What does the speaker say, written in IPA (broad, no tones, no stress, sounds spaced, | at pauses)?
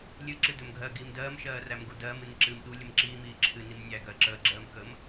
lʲ ɨ ǁ ɨ d ɵ m ɡʱ ɜ ɡ iː m d ɜː m ʃ ɜː r æ m ɡ u d ɜː m ɨ n i ǁ ɨː m ɗ u lʲ ə m ǁ iː m iː ǁʰ ɨ n i m nʲ æ ɡ ɜ ǁ əː ɡ͡ǁ ɜː m k ə m